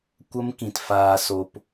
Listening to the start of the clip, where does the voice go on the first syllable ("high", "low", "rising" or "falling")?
high